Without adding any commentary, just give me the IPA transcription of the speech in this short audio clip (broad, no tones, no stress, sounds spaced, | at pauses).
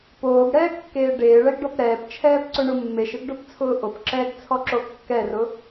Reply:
p oː ɡ ɽ ɛː ɡ kː eː ɖ eː ɭ ɛ ɡ ɖ ɔ p ɾ ɛː p t͡ʃʰ ɛː p ǀ ʊ ɳ ʊ mː e ʃ ɪ ɡ ɖ o p t͡sʰ ʊː ʔ o p ǁ ɛː ɡ t͡sʰ ɔ ǁ o kː ɛ r ʊ